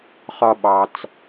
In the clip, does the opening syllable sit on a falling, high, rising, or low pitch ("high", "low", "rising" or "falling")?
low